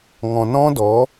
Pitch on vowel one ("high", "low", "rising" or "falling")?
low